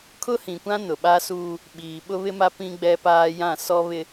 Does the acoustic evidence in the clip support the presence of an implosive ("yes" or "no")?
yes